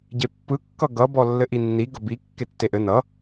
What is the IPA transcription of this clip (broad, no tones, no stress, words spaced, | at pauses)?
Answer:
ɟepːɯ kːʌɡʌ bɔlːɘʔinːi ɡʌbi kːetːeʔɘ nʌ